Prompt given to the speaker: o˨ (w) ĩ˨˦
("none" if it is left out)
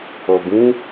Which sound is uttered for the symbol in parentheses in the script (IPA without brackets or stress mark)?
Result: b